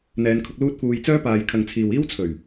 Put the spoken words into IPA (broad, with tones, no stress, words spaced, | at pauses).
n̪ɛː˨˧nkʰʊ˧k̚ luː˥t̚fuː˧j t͡sœː˥ paː˨jkʰɐ˨ŋt͡sʰiː˨w iː˥wt͡sʰɵ˨˩ɥ